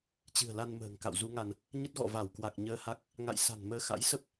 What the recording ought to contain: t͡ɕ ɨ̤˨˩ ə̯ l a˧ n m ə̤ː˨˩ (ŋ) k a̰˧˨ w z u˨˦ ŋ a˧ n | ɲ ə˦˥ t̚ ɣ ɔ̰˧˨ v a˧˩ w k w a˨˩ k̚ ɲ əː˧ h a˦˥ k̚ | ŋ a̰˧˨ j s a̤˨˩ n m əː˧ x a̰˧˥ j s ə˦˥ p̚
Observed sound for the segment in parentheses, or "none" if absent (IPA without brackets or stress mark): ŋ